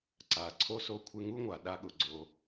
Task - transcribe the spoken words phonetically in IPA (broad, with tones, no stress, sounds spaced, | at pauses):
ǀ a˩ ǀʰ o˥ s o˧ kʷʰ ɪ˧ ŋ u˥ ŋʷ a˩ ɗ a˧ ɠ ʊ˩ ɡ͡ǀ o˩